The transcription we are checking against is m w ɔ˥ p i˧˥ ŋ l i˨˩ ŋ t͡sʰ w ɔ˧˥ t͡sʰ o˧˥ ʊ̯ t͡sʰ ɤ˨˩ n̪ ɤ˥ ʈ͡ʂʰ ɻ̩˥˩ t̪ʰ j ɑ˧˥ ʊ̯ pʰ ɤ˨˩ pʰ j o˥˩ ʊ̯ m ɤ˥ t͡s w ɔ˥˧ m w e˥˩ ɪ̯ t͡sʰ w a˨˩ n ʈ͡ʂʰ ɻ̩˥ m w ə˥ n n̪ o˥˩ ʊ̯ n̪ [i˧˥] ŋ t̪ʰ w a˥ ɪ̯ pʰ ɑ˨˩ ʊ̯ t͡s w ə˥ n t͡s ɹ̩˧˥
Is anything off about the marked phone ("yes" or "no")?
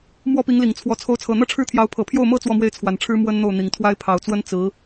yes